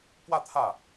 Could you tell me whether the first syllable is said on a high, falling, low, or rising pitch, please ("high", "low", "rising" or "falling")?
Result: falling